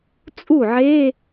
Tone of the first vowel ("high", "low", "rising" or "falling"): falling